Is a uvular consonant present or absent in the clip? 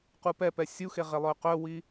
present